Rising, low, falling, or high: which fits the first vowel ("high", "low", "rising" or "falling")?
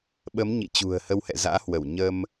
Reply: rising